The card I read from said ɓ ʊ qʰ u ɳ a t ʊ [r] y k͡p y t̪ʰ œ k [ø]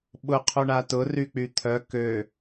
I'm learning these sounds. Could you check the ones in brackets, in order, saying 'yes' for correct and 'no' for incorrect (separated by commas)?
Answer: yes, yes